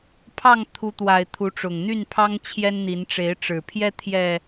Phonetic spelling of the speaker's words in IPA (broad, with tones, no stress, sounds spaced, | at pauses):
pʰ ɑ˥˨ ŋ t̪ʰ u˨˦ t̪ w a˨˩ ɪ̯ t̪ʰ u˨˦ ʈ͡ʂ ʊ˨˩ ŋ n̪ y˥˨ n pʰ ɑ˦ ŋ t͡ɕʰ j ɛ˦ n n̪ i˨˦ n ʈ͡ʂ e˨˦ ɪ̯ ʈ͡ʂ ɻ̩˨˩ pʰ j ɛ˦ t̪ʰ j ɛ˨˩